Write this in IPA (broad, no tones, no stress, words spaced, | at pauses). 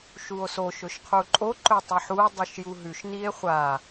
ʃuo̯so ʃɵʃqʰuǃʼo ǃɵtˤɨħuo̯ dˤʉʃjuɦʉʃ nie̯χʷa